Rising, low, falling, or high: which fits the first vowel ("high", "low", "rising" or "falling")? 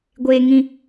high